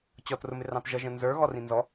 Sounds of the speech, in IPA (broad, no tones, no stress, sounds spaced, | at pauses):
t͡ɕ ɔ t r ʊ m ɪ r ɑ̃ t ʒ ʌ ʒ ə̃ n z ə˞ ɣ ɔ r ĩ n z ɔ